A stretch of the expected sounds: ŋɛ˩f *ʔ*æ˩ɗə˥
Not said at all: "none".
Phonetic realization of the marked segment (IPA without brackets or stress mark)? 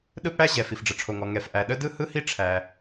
ʔ